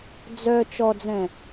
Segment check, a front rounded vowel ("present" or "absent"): present